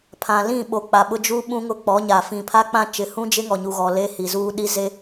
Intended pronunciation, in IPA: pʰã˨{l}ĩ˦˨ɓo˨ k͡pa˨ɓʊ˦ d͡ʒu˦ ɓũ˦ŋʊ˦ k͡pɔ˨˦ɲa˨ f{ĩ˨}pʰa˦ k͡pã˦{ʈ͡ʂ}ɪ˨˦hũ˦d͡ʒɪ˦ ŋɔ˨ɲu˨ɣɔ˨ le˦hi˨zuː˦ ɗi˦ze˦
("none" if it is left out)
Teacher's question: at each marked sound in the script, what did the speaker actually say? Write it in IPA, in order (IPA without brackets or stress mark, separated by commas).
l, ĩ˨, t͡ʃ